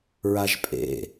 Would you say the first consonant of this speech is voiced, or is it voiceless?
voiced